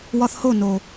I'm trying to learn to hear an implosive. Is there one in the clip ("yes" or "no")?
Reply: no